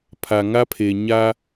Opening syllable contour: low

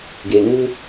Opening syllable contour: low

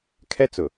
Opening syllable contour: high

